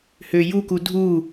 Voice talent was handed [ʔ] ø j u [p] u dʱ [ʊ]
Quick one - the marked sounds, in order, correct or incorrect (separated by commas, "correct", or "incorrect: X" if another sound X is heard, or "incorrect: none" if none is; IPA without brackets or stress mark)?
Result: incorrect: h, incorrect: k, incorrect: u